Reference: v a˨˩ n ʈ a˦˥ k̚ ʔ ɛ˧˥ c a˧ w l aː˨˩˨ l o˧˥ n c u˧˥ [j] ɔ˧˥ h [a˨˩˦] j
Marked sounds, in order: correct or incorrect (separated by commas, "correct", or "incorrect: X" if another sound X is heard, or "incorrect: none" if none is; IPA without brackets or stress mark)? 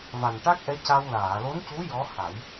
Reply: correct, correct